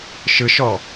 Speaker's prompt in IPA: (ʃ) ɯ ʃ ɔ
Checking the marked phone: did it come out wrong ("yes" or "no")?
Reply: no